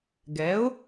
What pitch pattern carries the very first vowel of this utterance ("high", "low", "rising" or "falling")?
rising